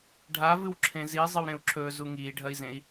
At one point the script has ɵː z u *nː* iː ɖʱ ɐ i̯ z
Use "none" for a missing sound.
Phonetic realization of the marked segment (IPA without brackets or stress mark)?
ŋ